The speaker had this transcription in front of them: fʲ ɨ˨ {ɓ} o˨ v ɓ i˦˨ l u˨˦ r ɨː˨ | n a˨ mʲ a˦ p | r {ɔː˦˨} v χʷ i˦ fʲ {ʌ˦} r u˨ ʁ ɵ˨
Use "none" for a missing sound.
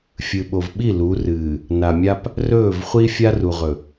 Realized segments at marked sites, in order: ɓ, ɵː˦˨, a˦

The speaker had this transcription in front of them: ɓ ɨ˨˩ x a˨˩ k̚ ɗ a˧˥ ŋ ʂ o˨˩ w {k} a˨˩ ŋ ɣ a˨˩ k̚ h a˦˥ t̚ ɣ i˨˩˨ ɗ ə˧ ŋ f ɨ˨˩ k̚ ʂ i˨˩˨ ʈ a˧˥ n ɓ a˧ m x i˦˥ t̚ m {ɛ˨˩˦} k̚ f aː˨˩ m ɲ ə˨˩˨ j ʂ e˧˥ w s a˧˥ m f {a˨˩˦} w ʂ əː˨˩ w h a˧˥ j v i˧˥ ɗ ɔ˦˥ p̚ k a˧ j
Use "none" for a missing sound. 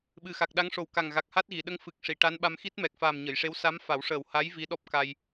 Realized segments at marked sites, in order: k, ɛ˨˩, a˨˩˦

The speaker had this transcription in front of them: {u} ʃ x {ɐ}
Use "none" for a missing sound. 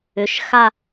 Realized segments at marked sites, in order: ʏ, a

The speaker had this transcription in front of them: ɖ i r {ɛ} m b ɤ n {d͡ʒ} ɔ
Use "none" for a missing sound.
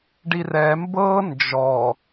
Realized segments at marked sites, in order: ɛ, d͡ʒ

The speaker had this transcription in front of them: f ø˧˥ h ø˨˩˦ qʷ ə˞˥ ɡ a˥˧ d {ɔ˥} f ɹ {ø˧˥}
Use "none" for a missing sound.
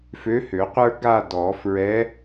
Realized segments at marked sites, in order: ɔ˨˩˦, ɛ˧˥

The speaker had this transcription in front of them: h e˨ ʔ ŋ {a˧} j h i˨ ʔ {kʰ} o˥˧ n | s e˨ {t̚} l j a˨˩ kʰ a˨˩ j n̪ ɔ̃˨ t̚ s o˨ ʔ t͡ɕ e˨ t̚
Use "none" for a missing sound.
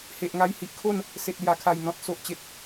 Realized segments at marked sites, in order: a˧, kʰ, t̚

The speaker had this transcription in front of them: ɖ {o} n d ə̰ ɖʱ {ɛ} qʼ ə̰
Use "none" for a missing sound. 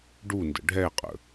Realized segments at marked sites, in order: u, ɛ

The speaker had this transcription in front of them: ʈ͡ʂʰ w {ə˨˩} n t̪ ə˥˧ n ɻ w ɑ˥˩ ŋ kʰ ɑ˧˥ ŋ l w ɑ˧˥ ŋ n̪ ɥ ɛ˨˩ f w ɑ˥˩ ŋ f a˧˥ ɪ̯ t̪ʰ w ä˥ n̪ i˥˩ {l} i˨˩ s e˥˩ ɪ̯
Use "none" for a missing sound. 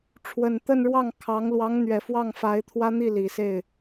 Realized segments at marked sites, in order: ə˨˩, l

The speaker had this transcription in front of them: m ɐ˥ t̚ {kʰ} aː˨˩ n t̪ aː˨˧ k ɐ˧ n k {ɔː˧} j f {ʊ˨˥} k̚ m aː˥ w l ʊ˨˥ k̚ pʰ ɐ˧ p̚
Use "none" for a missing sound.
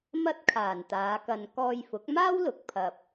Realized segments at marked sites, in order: kʰ, ɔː˧, ʊ˨˥

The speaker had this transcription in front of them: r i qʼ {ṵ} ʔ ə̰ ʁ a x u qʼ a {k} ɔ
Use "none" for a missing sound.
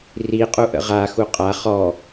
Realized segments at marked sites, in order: u, χ

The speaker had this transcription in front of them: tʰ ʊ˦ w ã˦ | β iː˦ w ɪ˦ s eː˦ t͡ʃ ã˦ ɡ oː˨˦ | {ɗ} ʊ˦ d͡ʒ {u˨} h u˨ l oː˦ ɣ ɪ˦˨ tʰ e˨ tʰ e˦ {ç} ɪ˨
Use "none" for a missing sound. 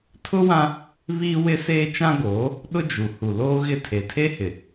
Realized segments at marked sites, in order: ɗ, u˨, h

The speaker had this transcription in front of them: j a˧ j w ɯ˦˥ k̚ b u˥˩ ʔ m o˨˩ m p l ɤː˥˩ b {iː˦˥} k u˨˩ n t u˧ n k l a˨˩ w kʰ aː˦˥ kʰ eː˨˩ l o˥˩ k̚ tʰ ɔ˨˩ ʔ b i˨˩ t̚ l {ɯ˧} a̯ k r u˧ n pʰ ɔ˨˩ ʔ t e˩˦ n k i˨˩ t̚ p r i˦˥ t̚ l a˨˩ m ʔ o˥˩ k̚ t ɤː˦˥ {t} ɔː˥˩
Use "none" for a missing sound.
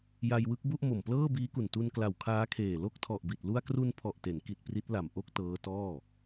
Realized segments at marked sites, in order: iː˦˥, u˧, t

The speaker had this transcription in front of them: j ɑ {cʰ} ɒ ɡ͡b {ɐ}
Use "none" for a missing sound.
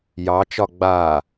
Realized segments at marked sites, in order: t͡ʃ, a

